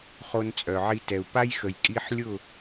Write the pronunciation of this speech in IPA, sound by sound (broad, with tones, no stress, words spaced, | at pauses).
χo˧nt͡sʼœ˨ʕi˧ tɛ˨u̯pa˦jxə˨j kʼi˧ħlʲʊ˦˨